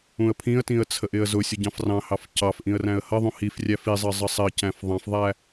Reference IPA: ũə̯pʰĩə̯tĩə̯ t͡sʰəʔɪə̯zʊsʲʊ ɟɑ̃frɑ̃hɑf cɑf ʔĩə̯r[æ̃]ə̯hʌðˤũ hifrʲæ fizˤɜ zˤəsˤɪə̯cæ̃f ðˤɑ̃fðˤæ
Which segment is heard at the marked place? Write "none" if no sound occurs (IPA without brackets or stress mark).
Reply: æ̃